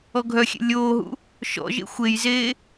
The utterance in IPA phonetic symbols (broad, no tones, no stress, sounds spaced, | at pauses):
ɔ ɡʱ œ xʲ ḛ lʲ oː ɦ ṵ | ʃ ɔ̰ ʒ ḛ xʷ e j z eː